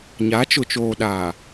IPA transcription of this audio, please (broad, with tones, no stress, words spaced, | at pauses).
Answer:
ɲa˨˦t͡ʃʊ˨ t͡ʃoː˨ɗaː˨